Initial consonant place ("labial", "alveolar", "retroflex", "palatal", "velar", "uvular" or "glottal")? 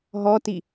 glottal